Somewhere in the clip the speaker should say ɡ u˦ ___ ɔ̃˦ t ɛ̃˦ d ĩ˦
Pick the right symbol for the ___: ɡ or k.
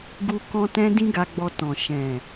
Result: k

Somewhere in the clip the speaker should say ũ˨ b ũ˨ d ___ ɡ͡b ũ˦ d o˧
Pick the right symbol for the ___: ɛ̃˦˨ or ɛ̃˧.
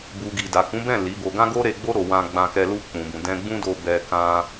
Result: ɛ̃˧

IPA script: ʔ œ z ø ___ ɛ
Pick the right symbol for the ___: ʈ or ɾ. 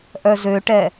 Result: ʈ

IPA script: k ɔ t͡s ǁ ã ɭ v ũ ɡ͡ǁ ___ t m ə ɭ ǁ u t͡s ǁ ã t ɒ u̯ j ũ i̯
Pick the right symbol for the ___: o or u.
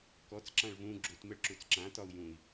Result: u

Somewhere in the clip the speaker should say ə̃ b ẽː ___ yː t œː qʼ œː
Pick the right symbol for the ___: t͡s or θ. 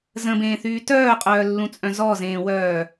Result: θ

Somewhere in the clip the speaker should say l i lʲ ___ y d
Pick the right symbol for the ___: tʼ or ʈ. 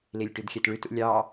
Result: ʈ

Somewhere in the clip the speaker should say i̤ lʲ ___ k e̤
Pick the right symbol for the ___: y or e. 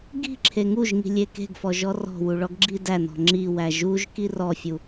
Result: e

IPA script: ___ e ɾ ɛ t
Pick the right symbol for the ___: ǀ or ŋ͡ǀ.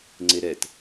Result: ŋ͡ǀ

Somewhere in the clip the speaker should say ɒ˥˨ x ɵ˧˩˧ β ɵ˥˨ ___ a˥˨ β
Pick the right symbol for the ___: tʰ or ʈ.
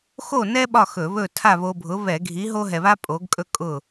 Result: tʰ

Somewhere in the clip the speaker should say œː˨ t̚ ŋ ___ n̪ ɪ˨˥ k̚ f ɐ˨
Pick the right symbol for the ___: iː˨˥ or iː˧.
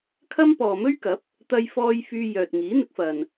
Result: iː˨˥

